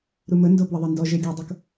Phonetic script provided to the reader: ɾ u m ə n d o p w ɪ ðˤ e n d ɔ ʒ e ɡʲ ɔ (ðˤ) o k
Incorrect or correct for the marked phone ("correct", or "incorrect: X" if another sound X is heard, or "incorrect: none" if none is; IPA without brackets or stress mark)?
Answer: incorrect: dˤ